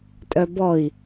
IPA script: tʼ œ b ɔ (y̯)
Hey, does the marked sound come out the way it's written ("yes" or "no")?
no